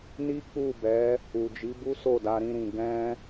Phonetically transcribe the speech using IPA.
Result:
ni˦k͡pu˦˨bɛ˨˦ | u˨d͡ʒi˨˦bu˦ so˦˨da˧ɾĩ˧ ɾĩ˨ ɡɛ̃˧

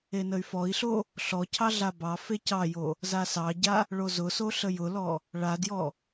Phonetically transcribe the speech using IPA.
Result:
enəy̯fɔi̯ɬo | ɬɔcʰɑ ɮabɑfe cɑjo | zasɑɟa | ɭozʊso ɬəjʊlɔ | ɭadjɔ

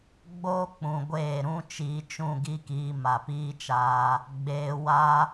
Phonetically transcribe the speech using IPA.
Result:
ɡ͡boː˦ k͡pũ˧ ɡʷeː˦˨ ɾũ˦ t͡ʃiː˧t͡ʃũ˦˨ɡi˦kiː˧ ma˨piː˦t͡ʃaː˧ | ɡ͡beː˧wa˦

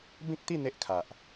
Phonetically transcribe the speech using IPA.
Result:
bĩ˦k̚t̪i˥˧ n̪e˦ʔkʰa˨ʔ

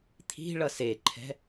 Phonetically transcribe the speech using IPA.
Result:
t̪ʰi̤ ɭʌseǃʰɛ̤

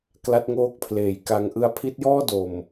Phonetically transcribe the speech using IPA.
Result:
kla˦˥t̚ŋoː˦˥k̚pʰleː˨˩j ka˧ŋʔɯ˦˥a̯ pʰi˦˥t̚jɔː˥˩do˨˩m

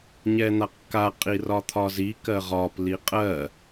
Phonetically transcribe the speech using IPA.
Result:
ɲɛn̪aqka qʼirɒt̪ʰɒzi kɜʁɒp liqʼɜ

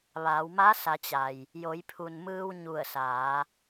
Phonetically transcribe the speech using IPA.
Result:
ʋa˩˧wma˧˥sa˩˧t͡ɕa˩j | jo˩˧jpʰu˩nmɯː˧w ɲu˧˩ə̯saː˩˧

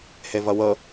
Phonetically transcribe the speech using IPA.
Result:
hevʌwɤ

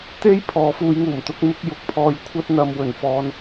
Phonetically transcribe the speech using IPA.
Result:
t̪e˥j pʰɔː˨˧fuː˧jŋuː˨˩m t̪ʊ˧k̚mɪ˧k̚ jʊ˨k̚pʰɔː˧j kʷʰɐ˥t̚n̪ɐ˧m wɵ˨˩n fɔː˧n

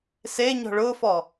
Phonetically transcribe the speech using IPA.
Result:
seɲɔ̤ ɭʊfɔ

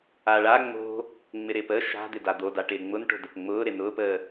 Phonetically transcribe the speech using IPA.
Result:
aɭa ŋ͡mo̤ | ŋ͡mɪɾɪːpə ʃa̤ d̪ɪdad̪o daʈɪːŋ͡mʊnʈo̤ dəpŋ͡mʊː ɾɪnʊːpəː

